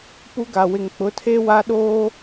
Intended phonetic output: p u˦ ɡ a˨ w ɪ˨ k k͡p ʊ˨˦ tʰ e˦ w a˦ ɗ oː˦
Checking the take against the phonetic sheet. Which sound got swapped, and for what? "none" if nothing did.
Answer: k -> ŋ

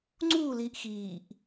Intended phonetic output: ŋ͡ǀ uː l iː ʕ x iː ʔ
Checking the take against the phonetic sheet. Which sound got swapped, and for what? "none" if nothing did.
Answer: ʕ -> ʔ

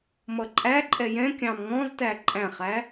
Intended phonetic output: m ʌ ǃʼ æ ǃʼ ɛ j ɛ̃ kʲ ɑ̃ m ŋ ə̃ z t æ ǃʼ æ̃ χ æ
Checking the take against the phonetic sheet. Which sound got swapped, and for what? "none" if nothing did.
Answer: ə̃ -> ɔ̃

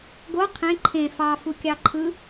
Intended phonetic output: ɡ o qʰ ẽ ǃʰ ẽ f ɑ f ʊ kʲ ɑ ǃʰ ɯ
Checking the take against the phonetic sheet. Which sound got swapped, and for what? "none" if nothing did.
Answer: ʊ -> u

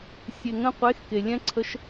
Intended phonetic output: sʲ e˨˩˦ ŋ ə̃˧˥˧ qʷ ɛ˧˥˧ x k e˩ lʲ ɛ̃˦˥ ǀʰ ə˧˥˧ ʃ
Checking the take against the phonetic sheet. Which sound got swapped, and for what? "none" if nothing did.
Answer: ɛ˧˥˧ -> e˧˥˧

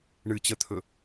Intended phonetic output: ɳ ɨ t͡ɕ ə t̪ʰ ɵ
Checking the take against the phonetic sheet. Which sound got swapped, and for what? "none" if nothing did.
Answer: none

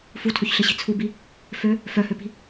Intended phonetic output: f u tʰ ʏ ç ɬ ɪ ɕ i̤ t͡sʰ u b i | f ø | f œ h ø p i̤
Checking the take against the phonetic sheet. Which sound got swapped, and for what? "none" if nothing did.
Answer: none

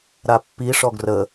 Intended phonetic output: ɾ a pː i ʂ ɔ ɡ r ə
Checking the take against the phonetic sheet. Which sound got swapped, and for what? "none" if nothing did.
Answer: none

